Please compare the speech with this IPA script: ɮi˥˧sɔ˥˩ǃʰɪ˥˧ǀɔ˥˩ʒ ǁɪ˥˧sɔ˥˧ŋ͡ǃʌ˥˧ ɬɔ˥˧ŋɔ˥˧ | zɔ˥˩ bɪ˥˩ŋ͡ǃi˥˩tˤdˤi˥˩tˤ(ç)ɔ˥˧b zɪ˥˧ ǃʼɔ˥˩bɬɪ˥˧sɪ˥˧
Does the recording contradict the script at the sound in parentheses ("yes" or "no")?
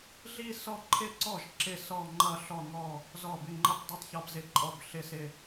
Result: no